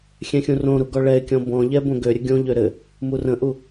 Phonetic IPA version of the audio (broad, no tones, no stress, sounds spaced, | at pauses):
xʲ ɛ̃ xʲ ũ r õ ɾ u ɡ ɔ ɭ ɛ ɪ̯ kʲ ɔ̃ b ɔ̃ ʎ ɛ b õ ɡ ø ɾʲ ɘ ɡʲ õ ʎ ø ɾ ɘ | m u r ə̃ ʔ u